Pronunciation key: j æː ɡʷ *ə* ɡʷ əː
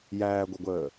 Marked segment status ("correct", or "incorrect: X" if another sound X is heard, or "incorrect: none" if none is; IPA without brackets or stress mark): correct